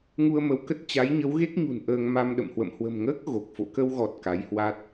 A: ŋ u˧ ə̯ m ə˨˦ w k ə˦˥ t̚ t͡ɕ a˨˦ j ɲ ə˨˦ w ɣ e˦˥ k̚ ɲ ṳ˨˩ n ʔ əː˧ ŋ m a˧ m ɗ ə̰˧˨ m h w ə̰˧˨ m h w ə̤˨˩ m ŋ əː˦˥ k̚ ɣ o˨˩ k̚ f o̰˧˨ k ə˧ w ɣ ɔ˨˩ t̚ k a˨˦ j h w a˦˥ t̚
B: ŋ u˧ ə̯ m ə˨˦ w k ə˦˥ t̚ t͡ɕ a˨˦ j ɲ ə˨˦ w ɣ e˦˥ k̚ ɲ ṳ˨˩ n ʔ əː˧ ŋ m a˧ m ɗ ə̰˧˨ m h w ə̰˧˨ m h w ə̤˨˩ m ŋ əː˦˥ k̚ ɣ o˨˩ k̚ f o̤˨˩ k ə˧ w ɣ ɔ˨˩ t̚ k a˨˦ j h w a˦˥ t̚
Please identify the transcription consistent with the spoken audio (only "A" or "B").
A